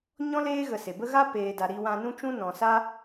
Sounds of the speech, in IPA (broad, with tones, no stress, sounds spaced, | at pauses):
ɲ ɔ̃˦ l eː˦ ɣ ə˧ s e˨ b ə˦ ɣ a˦ p eː˨ d a˨ ɾ i˧ w ã˧ n ũ˦ t͡ʃ ũ˦ n ɔ̃˨ s a˦